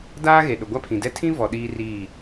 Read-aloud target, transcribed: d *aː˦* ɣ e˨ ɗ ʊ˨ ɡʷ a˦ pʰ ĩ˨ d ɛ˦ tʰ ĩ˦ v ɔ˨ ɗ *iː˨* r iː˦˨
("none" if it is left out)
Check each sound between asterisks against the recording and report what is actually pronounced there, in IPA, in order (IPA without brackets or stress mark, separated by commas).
aː˦, iː˦